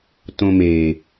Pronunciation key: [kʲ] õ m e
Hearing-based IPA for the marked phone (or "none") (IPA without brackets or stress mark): t